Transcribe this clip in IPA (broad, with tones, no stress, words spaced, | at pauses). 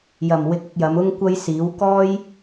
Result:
jɐ˨˩m wɪ˧k̚ɪ˧k̚jɐ˨˧m ʊ˥ŋkʷɐ˥j siː˨˥w kɔː˥j